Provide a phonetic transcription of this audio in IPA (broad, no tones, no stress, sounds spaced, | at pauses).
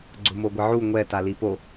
ɡ͡ǀ ʊ m o ɡʷ ɪ ʕ u ŋʷ ɛ t a l i p o